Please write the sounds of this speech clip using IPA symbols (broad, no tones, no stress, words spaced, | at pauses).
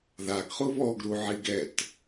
ðaɡχu βɔɡɾuʕiɡ ɛt